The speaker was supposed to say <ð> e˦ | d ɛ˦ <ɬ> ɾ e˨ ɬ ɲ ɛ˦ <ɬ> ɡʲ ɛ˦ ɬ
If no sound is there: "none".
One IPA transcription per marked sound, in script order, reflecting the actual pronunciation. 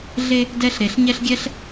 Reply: ɮ, ɬ, ɬ

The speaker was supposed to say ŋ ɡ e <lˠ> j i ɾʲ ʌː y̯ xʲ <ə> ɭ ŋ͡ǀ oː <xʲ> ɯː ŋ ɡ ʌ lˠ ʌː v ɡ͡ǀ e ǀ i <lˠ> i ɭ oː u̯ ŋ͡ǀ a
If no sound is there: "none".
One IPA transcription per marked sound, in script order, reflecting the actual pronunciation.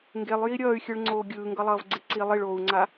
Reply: lˠ, ɯ, ɡʲ, lˠ

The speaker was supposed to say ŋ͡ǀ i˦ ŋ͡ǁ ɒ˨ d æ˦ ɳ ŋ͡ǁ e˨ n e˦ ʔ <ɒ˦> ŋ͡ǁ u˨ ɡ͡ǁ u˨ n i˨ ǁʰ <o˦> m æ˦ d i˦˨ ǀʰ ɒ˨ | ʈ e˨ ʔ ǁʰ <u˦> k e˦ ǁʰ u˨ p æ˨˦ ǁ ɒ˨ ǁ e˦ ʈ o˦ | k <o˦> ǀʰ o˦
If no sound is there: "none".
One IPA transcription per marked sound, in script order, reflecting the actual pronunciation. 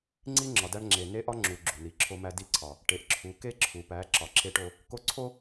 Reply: ɒ˦, o˦, u˨, o˦

